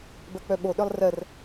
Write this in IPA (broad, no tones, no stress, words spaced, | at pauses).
bɜk͡pœɓoɗœlˠ rɜr